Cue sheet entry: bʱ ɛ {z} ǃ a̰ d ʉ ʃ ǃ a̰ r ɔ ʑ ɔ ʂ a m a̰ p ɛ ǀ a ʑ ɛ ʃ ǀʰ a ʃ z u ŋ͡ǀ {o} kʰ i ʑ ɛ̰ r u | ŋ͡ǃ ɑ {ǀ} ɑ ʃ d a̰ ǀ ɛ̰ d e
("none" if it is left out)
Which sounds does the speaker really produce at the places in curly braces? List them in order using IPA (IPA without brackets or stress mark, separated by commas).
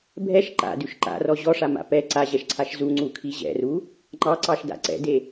ʃ, u, ǀ